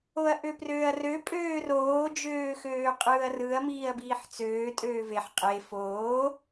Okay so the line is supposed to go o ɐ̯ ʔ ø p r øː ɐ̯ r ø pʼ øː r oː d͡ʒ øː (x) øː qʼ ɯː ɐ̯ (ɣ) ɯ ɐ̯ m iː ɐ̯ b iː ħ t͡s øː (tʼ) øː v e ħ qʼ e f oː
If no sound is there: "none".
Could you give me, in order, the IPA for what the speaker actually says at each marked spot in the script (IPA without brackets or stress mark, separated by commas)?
x, r, tʼ